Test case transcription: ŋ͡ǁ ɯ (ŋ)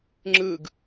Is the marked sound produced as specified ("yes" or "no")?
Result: no